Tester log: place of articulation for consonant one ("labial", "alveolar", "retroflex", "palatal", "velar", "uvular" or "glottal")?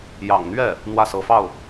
palatal